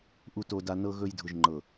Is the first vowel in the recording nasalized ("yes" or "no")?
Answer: no